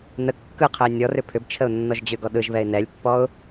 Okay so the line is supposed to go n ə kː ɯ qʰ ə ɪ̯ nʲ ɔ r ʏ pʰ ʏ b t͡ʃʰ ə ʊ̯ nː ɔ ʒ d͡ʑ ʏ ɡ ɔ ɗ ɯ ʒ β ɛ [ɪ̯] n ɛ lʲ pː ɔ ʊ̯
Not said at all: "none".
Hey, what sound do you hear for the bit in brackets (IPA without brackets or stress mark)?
ɪ̯